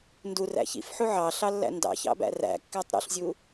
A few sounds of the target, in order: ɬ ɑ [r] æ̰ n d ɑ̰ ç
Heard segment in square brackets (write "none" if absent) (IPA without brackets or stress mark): lː